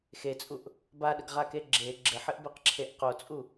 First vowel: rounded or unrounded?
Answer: unrounded